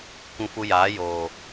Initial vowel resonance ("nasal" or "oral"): nasal